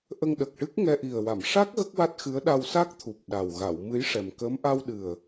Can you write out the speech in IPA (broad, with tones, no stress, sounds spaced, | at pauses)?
ʔ ə˧ ŋ ɗ ə˨˩ k̚ ʈ ɨ˦˥ k̚ ŋ ɛ˧ ʔ i˨˩ ə̯ w a˨˩˨ m ʂ a˦˥ k̚ ɣ ə˦˥ k̚ w a˦˥ t̚ x ɨ˧˥ ə̯ ɗ a˧ w s a˦˥ k̚ t̪ʰ u˨˩ p̚ ɗ a˨˩ w ɣ a˨˩˨ w m ɨ˧˥ j ʂ ɛ˨˩ m k əː˧˥ m ʔ a˧ w ɗ ɨ˨˩ ə̯